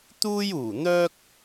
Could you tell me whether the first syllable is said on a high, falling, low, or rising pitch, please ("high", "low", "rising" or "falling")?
high